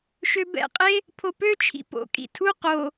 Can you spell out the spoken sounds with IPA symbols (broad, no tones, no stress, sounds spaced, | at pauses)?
ʃ ø b ɛ̰ qʼ e | pʰ o p ø t͡ʃʰ ḭ p o̰ kʼ ḭ tʰ u q o